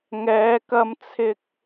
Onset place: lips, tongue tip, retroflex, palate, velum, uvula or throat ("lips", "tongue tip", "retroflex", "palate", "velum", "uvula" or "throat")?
velum